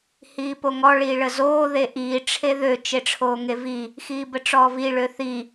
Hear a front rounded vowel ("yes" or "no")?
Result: yes